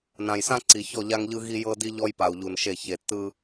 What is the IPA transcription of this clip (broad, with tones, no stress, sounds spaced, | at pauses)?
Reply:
n ã˨ j s ã˦ ǀ i˨ ç ɔ˦˨ ʎ a˦ ŋ ʎ ɯ˦ ɣ i˦ j ɤ˦ d i˦ ʎ ɔ˦ j p a˨ u̯ ʎ u˨ n ʃ e˦˨ ç e˨ tː ɯ˦